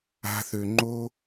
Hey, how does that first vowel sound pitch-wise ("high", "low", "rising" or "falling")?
high